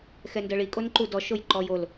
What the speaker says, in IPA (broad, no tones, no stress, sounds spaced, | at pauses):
x ɛ n d ɤ ɭ i kʼ o n ǃ u d ɔ ʃ o j ǃ ɔ j o l